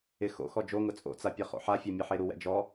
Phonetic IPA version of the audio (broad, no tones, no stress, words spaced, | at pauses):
ɪ xo̰ xɔd͡ʒoŋʊ t͡sʼo̰t͡sa pʲɛχo̰ħafʲa mʲeħeɾuwɛ̰ d͡ʒɔ